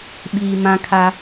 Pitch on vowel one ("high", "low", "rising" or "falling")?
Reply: low